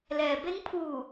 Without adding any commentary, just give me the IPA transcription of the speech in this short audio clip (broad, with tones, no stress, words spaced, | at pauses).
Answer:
lɛː˩be˧˥ŋ pʰuː˧˩